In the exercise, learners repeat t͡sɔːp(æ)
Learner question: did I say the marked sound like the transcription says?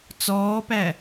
yes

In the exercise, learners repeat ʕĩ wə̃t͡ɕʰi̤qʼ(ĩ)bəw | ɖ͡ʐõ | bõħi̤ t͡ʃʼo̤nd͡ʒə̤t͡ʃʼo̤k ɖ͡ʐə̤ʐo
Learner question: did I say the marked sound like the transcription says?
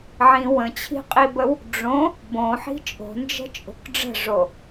no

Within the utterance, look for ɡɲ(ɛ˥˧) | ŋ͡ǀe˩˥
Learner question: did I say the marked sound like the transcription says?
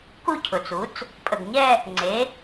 yes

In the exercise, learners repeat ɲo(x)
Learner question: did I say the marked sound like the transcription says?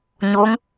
no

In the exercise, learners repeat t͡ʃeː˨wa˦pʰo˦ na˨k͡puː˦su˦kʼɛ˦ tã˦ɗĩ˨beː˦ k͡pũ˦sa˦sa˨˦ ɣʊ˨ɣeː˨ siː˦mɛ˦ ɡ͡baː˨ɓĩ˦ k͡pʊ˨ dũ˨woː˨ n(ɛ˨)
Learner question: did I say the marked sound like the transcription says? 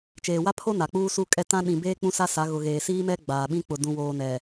yes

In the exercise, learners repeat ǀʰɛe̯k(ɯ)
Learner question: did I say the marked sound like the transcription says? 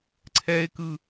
yes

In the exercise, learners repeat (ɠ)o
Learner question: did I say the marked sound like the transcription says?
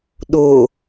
no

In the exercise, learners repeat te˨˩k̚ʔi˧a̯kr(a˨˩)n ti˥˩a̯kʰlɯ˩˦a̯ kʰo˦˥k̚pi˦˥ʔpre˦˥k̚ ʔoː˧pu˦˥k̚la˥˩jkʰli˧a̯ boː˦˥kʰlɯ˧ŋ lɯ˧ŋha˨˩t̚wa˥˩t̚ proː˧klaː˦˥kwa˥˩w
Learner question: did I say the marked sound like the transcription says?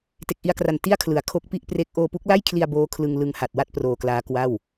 yes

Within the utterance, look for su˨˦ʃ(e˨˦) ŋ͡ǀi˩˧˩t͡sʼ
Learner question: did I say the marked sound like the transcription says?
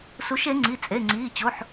yes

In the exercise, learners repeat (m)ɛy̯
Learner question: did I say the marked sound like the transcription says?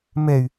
yes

